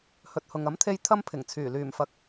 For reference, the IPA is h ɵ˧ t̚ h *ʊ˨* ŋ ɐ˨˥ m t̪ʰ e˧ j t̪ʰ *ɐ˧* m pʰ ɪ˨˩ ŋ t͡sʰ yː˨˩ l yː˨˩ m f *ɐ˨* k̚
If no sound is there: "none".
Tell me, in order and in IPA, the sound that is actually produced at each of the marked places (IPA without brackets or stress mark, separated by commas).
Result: ʊ˨, ɐ˥, ɐ˨